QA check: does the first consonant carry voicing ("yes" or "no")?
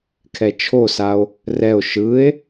no